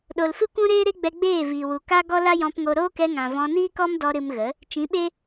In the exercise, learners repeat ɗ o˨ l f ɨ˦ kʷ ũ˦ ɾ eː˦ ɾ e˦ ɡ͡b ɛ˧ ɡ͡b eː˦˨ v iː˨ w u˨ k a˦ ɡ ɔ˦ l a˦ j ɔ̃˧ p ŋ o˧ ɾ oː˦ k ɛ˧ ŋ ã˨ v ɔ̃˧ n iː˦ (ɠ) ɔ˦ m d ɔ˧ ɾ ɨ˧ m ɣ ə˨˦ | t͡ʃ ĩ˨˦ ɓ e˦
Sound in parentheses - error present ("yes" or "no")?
yes